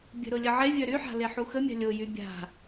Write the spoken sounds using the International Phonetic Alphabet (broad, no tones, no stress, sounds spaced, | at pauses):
bʲ ə̤ ɾ o lʲ ə ʕ e vʲ œ ɾ y ħ a̤ l e ħ u x ə mʲ a̤ lʲ o j y bʲ a̤